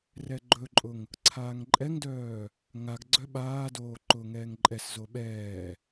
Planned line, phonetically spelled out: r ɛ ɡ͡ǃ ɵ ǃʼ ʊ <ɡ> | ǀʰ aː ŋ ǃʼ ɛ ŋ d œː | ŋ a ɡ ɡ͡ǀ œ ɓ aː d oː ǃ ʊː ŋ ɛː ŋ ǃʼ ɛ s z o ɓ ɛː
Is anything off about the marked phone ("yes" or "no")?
yes